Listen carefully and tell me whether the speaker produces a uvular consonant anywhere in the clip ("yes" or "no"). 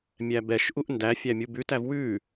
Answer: no